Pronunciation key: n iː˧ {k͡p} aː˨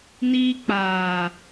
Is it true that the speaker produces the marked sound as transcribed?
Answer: yes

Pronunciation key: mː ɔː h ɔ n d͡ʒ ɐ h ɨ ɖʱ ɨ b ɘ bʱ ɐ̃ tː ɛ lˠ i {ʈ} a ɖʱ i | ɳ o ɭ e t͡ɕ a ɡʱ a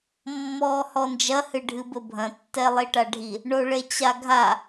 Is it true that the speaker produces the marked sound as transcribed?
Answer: yes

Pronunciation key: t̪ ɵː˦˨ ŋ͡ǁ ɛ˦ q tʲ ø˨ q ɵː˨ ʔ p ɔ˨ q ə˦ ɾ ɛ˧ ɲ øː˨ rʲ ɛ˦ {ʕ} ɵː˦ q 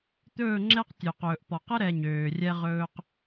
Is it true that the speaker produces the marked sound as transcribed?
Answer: no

